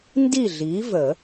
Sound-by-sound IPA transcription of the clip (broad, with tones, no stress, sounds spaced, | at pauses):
n d i˥˨ ɮ i˨˥ v ə˨˩˦